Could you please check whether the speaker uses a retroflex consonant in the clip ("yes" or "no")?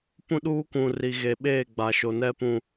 no